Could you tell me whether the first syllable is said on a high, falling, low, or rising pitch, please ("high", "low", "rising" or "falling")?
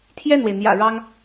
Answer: falling